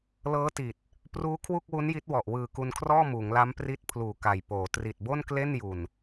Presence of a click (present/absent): absent